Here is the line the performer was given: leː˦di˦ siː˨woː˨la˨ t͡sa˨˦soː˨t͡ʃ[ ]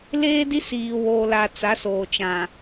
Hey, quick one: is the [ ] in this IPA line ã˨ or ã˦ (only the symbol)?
ã˨